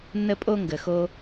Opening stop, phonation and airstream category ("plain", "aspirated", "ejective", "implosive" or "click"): ejective